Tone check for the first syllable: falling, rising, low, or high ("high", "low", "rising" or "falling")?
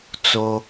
low